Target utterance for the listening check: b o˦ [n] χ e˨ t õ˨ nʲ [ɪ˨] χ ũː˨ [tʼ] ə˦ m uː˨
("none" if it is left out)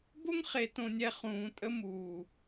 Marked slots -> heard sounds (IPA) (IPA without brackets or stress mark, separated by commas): ŋ, ɛ˨, tʼ